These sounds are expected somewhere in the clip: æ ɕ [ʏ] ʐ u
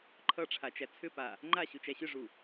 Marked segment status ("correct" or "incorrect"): correct